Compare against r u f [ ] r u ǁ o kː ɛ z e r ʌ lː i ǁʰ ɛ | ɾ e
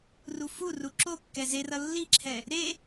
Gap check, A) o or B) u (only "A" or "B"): B